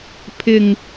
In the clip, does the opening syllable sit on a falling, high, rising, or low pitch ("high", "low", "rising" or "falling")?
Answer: low